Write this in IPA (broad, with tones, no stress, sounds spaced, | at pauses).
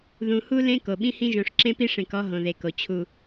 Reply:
ð ũ˨ h u˦ l ẽ˦ k o˨ ɓ ĩ˦ h ĩ˦ ʒ õ˨ ʂ ǁ ẽ˦ p i˦ ʂ ẽ˨ k ɔ˦ ɦ õ˨ ð e˨ k o˨ t͡ɕʰ u˨